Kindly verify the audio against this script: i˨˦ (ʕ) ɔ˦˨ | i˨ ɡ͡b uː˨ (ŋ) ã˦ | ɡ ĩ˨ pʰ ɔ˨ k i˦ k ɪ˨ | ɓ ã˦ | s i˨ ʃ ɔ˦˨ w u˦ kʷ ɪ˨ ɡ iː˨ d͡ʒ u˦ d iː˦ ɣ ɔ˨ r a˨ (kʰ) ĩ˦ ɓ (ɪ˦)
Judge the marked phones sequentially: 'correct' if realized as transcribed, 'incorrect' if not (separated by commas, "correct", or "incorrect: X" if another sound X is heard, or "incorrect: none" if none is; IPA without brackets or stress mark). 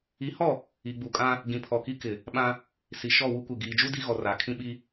incorrect: h, incorrect: kʼ, correct, incorrect: i˦